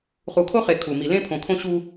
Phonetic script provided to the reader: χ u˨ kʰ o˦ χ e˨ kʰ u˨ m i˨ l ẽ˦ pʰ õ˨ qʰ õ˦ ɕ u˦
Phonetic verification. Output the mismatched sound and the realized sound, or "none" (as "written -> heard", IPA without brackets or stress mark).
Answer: qʰ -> kʰ